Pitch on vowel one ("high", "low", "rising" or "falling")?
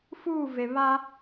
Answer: falling